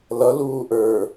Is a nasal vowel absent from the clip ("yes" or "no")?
yes